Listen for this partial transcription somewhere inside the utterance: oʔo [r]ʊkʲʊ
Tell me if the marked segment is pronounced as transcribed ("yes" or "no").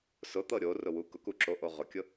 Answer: no